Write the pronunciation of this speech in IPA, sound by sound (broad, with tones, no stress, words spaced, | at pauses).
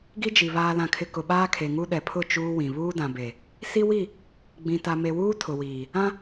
ɡi˦d͡ʒi˨ βaː˨lã˨kʰɪ˨ kʊ˨ɓaː˦kʰe˨ŋu˦ ɗɛ˨pʰʊ˦˨ t͡ʃuː˦wĩ˨ βuː˦dã˨be˨ | si˦wi˦˨ | ɡ͡bĩ˨ta˨me˨wuː˦ tʰʊ˨wiː˨ | ã˦